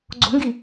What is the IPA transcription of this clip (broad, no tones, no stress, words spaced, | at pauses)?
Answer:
ɡ͡ǀo̤ŋɡi